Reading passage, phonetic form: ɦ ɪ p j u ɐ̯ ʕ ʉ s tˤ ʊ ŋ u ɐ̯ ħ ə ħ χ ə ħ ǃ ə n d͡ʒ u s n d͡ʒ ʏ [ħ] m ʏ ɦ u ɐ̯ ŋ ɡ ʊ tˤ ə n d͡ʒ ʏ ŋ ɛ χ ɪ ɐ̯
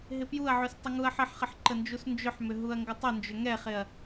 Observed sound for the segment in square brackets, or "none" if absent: ħ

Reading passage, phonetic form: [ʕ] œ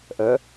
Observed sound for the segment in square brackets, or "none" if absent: ʔ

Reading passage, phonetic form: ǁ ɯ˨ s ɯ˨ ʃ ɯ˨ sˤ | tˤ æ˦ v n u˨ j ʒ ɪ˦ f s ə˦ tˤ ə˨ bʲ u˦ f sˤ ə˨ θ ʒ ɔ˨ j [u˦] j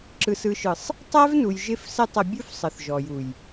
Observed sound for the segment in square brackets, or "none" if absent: u˨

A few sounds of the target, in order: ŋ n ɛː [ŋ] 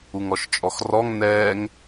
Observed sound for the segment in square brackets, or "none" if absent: ŋ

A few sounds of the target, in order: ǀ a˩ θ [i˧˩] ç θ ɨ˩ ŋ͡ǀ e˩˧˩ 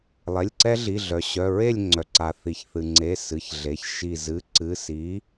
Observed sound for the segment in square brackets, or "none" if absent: i˩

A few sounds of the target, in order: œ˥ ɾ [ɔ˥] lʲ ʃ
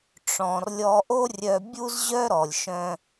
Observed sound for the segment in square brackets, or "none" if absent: ɔ˩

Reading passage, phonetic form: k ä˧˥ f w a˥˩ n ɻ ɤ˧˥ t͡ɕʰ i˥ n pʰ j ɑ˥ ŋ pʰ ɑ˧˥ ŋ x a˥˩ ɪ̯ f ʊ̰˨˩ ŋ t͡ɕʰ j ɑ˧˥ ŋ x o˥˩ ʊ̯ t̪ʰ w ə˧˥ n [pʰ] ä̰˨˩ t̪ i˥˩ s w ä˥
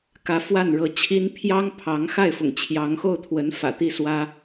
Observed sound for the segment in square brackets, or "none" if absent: f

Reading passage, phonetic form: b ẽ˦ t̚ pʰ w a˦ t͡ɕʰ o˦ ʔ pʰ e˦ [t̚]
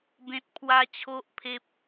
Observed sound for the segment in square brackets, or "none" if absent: p̚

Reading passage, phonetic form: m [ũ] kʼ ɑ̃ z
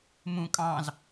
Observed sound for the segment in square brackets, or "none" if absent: ũ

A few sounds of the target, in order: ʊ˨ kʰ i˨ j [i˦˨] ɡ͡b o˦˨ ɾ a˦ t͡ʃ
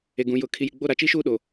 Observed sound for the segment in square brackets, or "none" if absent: i˨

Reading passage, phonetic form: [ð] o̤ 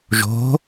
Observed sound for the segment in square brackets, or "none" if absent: ʒ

